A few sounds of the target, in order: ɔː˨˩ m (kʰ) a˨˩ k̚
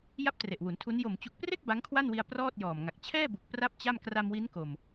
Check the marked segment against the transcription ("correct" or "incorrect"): incorrect